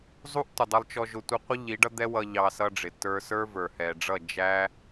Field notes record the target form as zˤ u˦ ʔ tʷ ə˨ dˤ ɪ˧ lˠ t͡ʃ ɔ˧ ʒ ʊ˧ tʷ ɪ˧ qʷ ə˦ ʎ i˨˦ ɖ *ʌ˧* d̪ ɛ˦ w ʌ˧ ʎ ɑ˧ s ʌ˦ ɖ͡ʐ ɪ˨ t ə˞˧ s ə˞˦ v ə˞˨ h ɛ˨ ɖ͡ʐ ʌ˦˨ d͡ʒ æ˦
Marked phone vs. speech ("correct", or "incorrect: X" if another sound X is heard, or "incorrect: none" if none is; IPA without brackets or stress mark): incorrect: ʌ˦